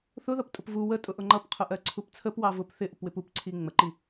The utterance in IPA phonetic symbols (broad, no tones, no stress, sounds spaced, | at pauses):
θ ʊ ð ʌ p tʼ ʊ p v u w ə tʼ ʊ ʔ ʊ ŋ͡ǃ ʌ p qʰ ʊ ʔ ɜ ǀʰ u p t͡sʰ ə p w ɑ v ʊ p θ ɪ ʔ ʊ p w ɪ p u p ǀʰ i ŋ͡m ə ǃ i